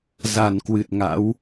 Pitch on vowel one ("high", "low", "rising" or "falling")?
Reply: low